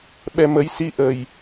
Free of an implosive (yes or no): no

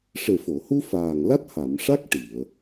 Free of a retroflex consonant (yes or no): no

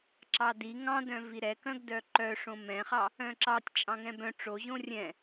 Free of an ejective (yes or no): no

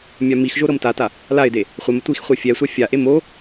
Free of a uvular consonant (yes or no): no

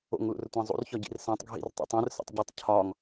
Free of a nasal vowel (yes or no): no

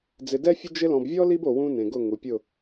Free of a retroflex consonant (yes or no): yes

